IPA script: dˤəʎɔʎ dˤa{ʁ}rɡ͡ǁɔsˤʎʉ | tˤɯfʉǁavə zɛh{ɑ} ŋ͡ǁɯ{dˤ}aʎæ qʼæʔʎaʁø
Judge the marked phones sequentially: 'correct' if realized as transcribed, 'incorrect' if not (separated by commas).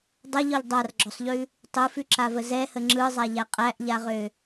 incorrect, incorrect, incorrect